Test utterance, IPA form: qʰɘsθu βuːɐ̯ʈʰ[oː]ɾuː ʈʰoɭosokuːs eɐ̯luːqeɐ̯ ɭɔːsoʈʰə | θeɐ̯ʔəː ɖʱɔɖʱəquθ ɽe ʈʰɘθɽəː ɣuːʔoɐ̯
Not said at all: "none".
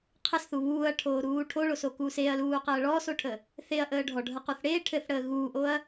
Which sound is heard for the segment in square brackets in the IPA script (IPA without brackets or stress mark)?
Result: oː